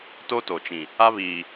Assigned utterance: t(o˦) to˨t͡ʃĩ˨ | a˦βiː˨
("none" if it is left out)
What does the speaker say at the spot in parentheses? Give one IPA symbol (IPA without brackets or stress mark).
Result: o˦